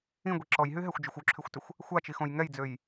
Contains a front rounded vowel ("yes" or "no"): yes